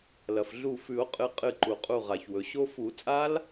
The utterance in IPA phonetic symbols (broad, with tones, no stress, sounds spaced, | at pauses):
l ɐ˩ f ɮ u˧˩ f ʉ˨˩˦ o̯ qʼ ɨ˨˦ qʼ ɨ˧˩ ǃ u˩ qʼ u˧˩ ʁ a˩ ç w ɵ˩ ɕ o˦˥ f u˨˩˦ t͡sʼ a˦˥ l